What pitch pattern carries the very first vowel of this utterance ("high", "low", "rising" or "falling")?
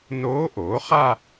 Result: rising